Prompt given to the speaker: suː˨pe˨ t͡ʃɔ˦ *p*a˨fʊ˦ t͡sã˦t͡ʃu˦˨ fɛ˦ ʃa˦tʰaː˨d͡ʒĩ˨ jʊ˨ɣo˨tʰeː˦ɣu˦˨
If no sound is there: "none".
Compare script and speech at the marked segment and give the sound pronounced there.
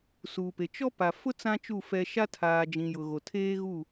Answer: p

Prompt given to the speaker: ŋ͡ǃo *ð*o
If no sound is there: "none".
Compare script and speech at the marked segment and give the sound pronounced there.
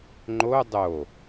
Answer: dˤ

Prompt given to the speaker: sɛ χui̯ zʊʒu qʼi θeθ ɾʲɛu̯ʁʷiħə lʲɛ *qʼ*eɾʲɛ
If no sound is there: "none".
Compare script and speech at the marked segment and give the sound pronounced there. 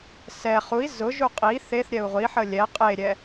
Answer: qʼ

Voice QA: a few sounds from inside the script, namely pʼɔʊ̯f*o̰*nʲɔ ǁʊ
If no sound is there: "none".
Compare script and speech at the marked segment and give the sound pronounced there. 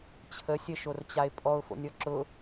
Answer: o̰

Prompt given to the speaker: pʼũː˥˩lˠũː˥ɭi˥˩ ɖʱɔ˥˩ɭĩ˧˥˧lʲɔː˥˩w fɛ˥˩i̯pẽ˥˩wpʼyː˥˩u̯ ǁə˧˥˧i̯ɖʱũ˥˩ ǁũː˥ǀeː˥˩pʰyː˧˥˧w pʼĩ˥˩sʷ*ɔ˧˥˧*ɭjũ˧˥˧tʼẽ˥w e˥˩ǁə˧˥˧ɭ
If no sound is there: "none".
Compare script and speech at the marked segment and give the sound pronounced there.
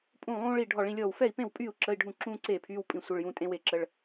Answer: ə˧˥˧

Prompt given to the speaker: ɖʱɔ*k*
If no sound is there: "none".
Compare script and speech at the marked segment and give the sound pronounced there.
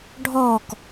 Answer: k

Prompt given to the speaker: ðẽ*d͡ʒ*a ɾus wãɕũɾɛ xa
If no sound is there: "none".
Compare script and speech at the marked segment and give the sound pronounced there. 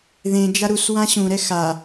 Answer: d͡ʒ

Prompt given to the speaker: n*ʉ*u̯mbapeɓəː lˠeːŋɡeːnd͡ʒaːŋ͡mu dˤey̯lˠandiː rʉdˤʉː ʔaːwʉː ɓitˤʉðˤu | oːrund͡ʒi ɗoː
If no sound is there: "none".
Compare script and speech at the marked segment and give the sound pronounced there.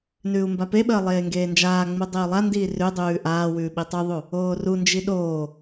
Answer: ʉː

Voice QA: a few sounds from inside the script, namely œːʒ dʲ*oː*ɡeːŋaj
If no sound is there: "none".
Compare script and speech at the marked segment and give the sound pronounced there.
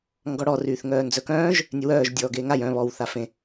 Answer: ɔː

